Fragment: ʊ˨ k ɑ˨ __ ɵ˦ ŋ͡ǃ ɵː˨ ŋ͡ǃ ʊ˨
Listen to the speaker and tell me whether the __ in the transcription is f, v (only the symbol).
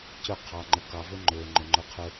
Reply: v